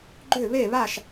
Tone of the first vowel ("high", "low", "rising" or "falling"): falling